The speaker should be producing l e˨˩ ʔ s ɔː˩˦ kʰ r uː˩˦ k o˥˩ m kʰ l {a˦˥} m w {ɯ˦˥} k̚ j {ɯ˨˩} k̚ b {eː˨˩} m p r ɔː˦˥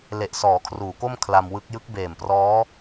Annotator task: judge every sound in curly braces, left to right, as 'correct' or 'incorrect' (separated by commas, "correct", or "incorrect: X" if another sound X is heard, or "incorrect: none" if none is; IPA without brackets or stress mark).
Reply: incorrect: a˧, correct, incorrect: ɯ˦˥, correct